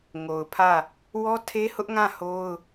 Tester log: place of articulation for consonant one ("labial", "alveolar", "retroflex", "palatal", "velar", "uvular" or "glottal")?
velar